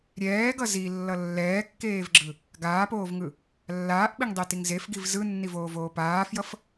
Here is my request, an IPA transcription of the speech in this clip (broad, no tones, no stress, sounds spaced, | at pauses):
ɾʲ ɛː ɡ ʌ z i lː ʌ lː ɛː kː eː v ɡ͡ǁ ɯ | ɡ aː p oː v ŋ ɯ | lː aː ʔ ɓ i ŋ dˤ i t i ŋ z e f ɡ i v z ɯ nː i v oː v oː p aː f j ʌ f